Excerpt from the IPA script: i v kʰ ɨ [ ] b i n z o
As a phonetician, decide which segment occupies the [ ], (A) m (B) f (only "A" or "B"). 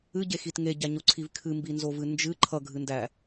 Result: A